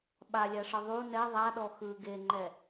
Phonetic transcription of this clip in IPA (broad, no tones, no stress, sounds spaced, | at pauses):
ɓ a lʲ a ʂ ɤ ðˤ u n ɛ ðˤ a ɗ ɔ x ɯ ɡ e ŋ͡ǃ ɛ